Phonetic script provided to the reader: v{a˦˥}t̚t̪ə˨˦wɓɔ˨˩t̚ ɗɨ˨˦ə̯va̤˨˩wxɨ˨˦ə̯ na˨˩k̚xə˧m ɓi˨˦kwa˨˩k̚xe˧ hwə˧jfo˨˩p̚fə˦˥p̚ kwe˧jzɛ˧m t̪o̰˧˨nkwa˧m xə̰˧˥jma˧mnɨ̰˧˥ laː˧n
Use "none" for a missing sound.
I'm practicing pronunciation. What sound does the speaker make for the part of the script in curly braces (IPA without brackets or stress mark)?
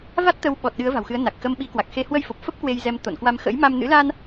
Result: a˦˥